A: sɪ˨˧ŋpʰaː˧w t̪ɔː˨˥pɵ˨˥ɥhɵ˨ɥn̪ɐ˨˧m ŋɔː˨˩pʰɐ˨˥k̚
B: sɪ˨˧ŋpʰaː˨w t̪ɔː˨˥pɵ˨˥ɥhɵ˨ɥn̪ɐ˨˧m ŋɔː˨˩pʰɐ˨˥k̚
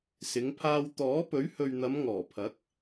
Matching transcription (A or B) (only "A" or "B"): A